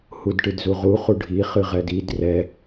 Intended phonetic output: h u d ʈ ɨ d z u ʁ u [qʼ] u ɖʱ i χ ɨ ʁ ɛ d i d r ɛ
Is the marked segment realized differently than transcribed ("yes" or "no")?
yes